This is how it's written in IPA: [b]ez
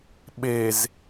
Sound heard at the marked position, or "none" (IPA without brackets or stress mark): ɓ